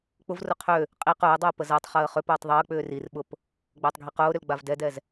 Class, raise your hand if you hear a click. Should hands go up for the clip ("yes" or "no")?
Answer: no